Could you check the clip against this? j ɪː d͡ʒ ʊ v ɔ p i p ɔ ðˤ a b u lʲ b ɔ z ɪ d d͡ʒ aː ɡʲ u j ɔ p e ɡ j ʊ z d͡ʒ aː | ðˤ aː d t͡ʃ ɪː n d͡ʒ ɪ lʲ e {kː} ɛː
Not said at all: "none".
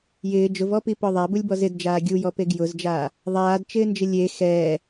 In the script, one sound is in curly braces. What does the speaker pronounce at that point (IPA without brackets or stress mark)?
x